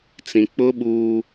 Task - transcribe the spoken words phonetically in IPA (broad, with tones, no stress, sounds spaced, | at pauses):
t͡s ĩ˨ k͡p ʊ˦ ɓ uː˦